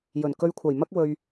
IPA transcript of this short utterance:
j ɵ˨˩ n k ɵ˧ ɥ kʷʰ ɐ˨˩ j m ɐ˥ k̚ w ɵ˧ ɥ

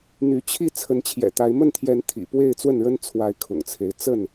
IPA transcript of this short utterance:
n̪ y˨˦ t͡ɕʰ i˥˨ t͡sʰ ə˨˦ n t͡ɕʰ j ɛ̰˨˩ t̪ a˨˦ ɪ̯ m ə˥˨ n t̪ʰ j ɛ˨˦ n t̪ʰ ḭ˨˩ p w e˥˨ ɪ̯ t͡s w ə˥˨ n ɻ ə˦ n t͡sʰ w a˨˦ ɪ̯ kʰ ʊ̰˨˩ ŋ t͡sʰ e˨˦ ɪ̯ t͡s ə˥˨ n

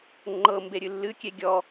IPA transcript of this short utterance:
ŋ͡ǃ ɤ m b e ɾʲ ɨ lː ɨ kʲ e ɡʲ ɔ

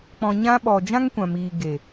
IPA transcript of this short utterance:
k͡p ɔ̃˧ ɲ ã˦ ɓ ɔ˧ d͡ʒ ã˦ ŋ kʷ ã˨ m iː˨ ɡ e˨

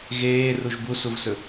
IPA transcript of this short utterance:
ɣ eː r u ʒ b u s u v s ɵ

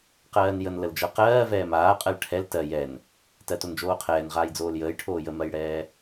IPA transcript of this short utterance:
q ɜː n j ə n l ə l d͡ʒ ɜ q ɜː v ɛː m aː qʼ ɜ l ʈʰ ɛ l t ɜ j ɛ n | t ɜ t o n d͡ʒ oː qʰ ɛː n ʁ aː j d͡z oː l j əː j ʈʰ oː j ə m ɜ j ɽ ɛː

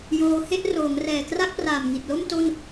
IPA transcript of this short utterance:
j oː˧ h e˥˩ ʔ r oː˩˦ ŋ r ɛː˨˩ k r a˥˩ k̚ p r aː˨˩ m ŋ i˨˩ t̚ l o˥˩ m t o˥˩ n

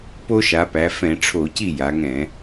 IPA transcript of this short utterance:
p o˦ ʃ a˩˧ p æ˩˧ f ɛ̃˧˩˧ ʈ͡ʂʰ o˧˩˧ c i˥˩ j a˩˧ ŋ ɛ̃˧˩˧

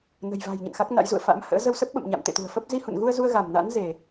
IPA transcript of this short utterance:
n ə̤˨˩ j v a̤˨˩ j ɲ ə̰˧˨ n x a˦˥ k̚ n a̰˧˥ j z ṵ˧˨ ə̯ f a̰˧˥ m h ə̰ː˧˥ z ə˧ w s ə˦˥ p̚ ɓ ə̰˧˨ m ɲ a̰˧˨ m t̪ ḛ˧˨ t̪ ṳ˨˩ ə̯ f ə˦˥ p̚ z i˧ h ṵ˧˨ n ɣ u˧ ə̯ z u˧ ə̯ ɣ a˧˩ m n a̰˧˥ n z e˧˩˨

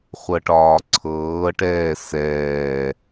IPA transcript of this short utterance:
χʷ ɤ ʈ ɒː ǀʰ ɤː ʈ ɛː s ɛː

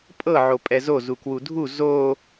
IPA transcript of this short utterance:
pʼ ɤ ʕ o pʼ ɛ z o z u k w u dʱ u z o

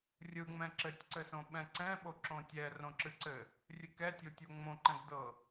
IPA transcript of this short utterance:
rʲ ɯ ŋ͡m ɛ̃ ǁ ɘ tʲ ǀ ɘ s õ ɓ ɛ̃ ǀ ɛ̃ ɓ o ǁ õ tʲ ɛ r õ ǁ ɨ ǀ ɘ | rʲ ɨ k ɛ tʲ o tʲ o ŋ͡m õ ǃ ɛ̃ ɡ d ɤ

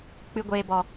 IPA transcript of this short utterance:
k͡p ɨ˧ ɡʷ eː˧ b ɔ˨

